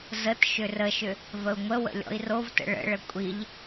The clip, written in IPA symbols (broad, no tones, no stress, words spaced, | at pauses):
zət ʃʏrəʃʏ | vəu̯ŋʷəwə̰ lʲɔ̰i̯rovtə̰ ɭə̰ɭə kʷʼiʎ